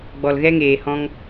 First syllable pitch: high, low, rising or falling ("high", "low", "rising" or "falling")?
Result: low